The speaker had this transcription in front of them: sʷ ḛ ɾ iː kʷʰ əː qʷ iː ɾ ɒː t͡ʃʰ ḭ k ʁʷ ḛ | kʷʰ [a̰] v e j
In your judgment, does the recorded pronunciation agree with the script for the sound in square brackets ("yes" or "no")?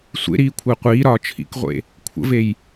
no